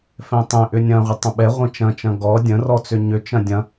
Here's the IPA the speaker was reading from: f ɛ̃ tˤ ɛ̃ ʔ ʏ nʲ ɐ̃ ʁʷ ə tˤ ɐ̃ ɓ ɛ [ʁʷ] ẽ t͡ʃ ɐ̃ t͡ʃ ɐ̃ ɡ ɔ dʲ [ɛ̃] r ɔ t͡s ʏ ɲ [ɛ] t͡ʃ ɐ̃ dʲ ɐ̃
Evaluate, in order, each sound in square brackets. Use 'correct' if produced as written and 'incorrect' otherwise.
correct, incorrect: ə̃, incorrect: ʏ

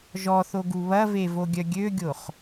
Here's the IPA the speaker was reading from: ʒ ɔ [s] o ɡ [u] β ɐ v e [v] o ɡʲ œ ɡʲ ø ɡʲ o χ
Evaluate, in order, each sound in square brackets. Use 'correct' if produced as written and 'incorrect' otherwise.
incorrect: θ, correct, correct

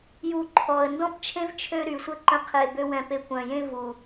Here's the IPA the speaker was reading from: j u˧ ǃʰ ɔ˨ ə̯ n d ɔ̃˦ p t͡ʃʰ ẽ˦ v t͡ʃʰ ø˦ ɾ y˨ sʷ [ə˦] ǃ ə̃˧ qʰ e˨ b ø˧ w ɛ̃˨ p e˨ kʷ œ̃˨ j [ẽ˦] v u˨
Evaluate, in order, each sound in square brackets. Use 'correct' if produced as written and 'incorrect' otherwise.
correct, correct

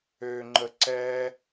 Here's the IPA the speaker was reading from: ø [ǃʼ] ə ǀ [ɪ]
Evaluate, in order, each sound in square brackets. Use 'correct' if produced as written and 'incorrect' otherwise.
incorrect: ŋ͡ǃ, incorrect: ɛ

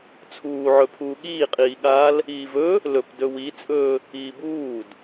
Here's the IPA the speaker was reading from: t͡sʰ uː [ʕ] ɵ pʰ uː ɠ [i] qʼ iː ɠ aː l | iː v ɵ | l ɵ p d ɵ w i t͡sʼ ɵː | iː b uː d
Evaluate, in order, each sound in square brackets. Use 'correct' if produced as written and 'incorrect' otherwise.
correct, incorrect: iː

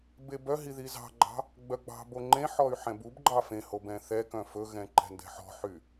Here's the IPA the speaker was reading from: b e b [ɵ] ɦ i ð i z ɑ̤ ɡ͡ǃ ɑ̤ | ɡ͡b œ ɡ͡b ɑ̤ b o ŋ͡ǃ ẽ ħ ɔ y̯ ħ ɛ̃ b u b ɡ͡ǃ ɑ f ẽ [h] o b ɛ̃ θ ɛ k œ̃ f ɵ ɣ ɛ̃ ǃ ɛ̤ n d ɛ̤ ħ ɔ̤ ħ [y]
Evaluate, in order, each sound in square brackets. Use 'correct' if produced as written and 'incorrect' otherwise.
incorrect: œ, correct, correct

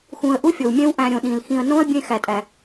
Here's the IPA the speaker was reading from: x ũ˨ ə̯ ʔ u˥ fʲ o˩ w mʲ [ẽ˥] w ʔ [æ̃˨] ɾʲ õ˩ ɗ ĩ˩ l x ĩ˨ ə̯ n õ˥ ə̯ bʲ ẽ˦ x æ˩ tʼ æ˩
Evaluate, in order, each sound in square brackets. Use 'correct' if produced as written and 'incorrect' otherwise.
incorrect: ẽ˦, correct

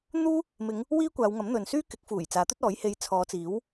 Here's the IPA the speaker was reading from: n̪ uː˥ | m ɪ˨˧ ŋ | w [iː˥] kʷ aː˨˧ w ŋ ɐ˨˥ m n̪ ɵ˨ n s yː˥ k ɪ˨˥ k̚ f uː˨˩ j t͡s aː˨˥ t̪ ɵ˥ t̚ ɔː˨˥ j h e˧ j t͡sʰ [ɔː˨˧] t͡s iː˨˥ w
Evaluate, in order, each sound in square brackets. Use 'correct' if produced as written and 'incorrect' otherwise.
correct, correct

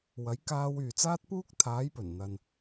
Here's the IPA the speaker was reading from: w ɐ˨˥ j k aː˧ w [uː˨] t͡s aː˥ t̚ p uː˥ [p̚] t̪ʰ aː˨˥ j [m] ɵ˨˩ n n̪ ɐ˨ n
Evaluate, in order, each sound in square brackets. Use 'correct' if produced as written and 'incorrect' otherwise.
incorrect: yː˨, incorrect: k̚, incorrect: p

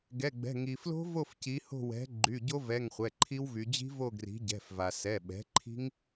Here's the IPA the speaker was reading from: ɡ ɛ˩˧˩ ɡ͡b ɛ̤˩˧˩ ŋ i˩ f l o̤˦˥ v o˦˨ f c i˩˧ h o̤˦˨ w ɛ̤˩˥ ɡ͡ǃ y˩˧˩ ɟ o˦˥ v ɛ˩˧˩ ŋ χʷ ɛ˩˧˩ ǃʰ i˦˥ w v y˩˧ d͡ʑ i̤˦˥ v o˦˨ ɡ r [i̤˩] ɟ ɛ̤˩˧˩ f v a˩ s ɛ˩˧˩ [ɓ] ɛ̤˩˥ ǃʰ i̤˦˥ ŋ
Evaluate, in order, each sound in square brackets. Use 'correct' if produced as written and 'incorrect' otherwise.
incorrect: i̤˩˥, correct

